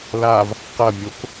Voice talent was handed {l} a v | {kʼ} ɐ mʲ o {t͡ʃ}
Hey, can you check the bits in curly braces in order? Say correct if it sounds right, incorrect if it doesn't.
correct, incorrect: q, incorrect: k

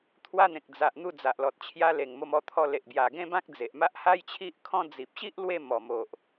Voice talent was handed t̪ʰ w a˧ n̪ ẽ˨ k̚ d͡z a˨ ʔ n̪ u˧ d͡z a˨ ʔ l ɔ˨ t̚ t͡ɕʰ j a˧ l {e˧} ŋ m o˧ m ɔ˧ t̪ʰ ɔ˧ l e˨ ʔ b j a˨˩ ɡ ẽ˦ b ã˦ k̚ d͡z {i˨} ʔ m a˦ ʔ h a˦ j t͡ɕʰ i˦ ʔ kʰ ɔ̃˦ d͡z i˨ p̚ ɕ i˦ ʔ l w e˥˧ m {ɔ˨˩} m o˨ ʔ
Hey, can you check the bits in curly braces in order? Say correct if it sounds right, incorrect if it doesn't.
incorrect: e˨˩, incorrect: e˨, correct

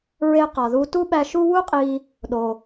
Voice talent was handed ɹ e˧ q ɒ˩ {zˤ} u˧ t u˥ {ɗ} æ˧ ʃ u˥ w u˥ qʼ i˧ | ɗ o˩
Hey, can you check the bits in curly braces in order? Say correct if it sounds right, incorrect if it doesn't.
incorrect: ð, incorrect: ɓ

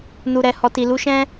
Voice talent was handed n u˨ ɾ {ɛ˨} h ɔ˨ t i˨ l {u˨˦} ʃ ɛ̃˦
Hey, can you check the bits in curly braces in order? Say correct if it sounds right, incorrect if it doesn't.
correct, correct

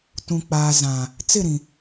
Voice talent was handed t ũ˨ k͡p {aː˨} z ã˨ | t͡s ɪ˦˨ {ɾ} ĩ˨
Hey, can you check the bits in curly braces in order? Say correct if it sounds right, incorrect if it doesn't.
correct, correct

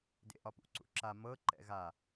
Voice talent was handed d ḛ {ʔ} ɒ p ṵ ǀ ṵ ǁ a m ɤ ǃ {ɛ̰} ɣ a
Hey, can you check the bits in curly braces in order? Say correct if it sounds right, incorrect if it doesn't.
correct, correct

